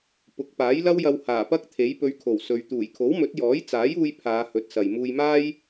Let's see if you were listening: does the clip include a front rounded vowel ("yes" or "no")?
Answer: no